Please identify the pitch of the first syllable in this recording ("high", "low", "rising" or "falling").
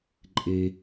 low